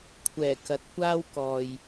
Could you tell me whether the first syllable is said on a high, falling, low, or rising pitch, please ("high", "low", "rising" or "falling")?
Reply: low